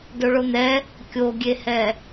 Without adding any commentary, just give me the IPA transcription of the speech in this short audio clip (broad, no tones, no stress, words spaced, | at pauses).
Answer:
doɭon̪ɛ | kʲoɡʲehɛ